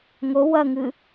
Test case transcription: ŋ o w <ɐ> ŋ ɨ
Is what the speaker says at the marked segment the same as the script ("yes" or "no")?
yes